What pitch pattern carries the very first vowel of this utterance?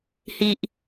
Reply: high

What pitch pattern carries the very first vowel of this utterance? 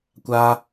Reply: high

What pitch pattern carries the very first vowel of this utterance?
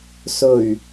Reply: low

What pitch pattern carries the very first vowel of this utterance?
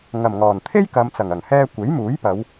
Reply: low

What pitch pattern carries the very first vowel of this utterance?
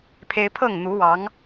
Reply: high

